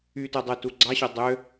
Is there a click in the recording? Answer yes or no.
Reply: yes